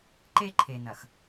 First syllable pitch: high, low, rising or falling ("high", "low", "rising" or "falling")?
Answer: high